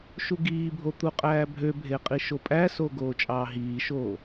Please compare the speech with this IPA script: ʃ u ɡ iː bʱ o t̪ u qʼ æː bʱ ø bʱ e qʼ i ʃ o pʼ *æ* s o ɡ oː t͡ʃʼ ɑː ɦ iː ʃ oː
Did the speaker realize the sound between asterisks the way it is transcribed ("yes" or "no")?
yes